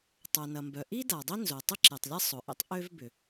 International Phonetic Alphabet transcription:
tˤ o˩ n ɐ˩ m b œ˩ ʔ i˥ d a˩ dˤ i˥ n z o˩ tˤ ɪ˥ ǁ e˩ tˤ lʲ ɐ˥ sˤ ʊ˩ ʔ ḭ˥ tˤ ʔ ø˥ v b ʏ˩

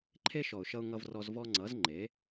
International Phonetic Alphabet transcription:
ǃʰ e˦ ʃ ɔ˨ ʊ̯ ʃ ʌ˧ ʊ̯ ŋ ʌ˧ v r ɔ˧ z v ɔ˧ ŋ͡ǀ ʌ˨˦ z ŋ͡ǃ e˨˦

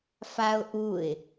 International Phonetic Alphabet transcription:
f a ʊ̯ ʔ u ɪ̯

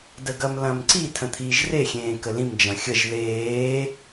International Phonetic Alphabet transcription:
d ə ɡ ɐ m l ɐ̃ m ǀ i tʰ ə̃ t̪ʰ iː ʒ r e xʲ ẽː k ə l ĩ m d͡ʒ ɐ̃ xʲ ə ʒ ð eː

